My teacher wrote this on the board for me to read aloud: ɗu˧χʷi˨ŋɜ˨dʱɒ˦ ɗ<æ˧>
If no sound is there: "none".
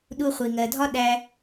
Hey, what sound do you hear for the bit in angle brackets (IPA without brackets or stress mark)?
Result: æ˧